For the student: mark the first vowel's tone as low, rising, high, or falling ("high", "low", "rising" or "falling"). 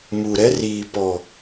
low